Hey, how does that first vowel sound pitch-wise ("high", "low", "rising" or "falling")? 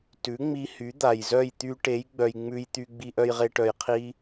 rising